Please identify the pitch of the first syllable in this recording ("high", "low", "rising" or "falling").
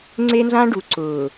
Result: high